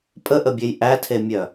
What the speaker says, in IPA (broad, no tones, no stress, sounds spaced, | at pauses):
pʼ ə ʔ ə bʲ e j ʔ æ tʰ e mʲ œ